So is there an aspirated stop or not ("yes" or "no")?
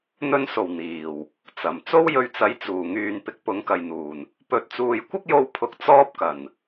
yes